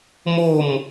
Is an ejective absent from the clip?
yes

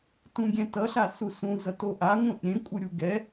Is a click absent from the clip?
yes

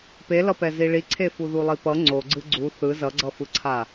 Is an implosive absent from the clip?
yes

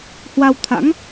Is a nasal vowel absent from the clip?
yes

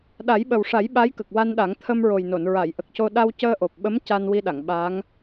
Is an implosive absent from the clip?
no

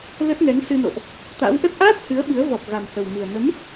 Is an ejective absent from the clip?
yes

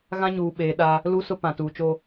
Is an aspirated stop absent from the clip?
yes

